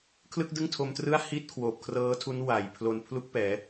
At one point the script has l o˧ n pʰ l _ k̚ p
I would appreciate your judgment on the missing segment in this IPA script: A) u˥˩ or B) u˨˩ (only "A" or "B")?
A